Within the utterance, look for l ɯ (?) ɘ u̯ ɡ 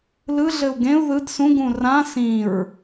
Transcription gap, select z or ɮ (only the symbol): ɮ